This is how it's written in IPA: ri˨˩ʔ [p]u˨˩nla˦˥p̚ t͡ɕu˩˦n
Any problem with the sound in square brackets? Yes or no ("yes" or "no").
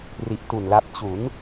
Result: yes